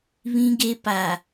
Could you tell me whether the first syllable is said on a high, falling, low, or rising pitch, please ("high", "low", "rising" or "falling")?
high